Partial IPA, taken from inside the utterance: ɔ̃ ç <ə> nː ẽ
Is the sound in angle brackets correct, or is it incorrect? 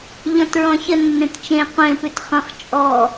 correct